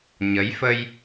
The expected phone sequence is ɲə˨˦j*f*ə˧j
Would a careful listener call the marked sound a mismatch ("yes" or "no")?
no